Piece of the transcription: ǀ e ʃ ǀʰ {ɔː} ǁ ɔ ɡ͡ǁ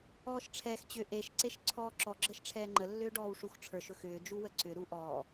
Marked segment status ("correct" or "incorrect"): correct